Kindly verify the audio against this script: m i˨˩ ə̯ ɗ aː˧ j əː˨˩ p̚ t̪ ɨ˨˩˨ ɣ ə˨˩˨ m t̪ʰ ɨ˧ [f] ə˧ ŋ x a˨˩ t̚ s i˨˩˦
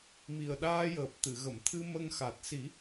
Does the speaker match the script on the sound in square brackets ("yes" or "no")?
no